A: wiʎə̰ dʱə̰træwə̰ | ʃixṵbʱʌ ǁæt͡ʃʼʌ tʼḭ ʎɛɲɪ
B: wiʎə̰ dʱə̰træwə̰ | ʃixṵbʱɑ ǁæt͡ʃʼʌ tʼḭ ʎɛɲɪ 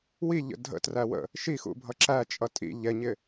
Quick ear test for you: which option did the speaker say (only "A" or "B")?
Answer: A